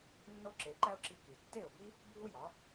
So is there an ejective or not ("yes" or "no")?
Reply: no